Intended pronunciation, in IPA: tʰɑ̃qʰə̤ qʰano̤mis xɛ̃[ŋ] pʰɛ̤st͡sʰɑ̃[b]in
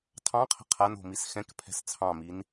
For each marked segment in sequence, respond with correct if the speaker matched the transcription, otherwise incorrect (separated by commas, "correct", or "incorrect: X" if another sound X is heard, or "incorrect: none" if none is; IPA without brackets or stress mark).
incorrect: k, incorrect: m